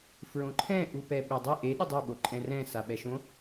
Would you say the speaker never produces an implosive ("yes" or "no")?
no